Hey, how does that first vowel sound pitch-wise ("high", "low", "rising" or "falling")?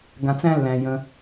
low